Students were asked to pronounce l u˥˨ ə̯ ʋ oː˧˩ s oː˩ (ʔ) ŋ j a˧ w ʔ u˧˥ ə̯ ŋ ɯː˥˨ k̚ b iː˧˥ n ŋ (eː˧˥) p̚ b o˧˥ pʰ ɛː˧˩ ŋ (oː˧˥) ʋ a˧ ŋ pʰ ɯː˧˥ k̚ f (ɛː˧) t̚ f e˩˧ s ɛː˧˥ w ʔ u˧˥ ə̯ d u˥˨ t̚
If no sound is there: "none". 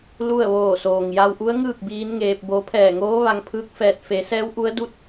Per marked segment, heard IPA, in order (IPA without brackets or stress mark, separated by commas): none, eː˧, oː˧˥, ɛː˧